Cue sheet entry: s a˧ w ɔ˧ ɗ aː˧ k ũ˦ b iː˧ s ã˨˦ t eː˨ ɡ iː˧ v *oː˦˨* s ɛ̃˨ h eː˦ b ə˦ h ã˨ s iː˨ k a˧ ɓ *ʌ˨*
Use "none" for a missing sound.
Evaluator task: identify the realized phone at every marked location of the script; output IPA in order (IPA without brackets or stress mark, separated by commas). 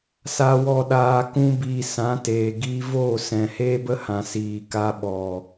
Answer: oː˦˨, ɔ˨